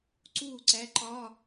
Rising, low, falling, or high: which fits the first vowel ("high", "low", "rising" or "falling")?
falling